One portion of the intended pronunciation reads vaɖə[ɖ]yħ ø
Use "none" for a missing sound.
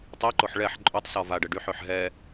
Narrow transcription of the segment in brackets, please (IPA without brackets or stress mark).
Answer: ɖ